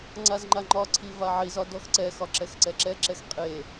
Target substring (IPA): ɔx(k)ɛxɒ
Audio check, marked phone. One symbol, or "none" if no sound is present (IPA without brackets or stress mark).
ǀ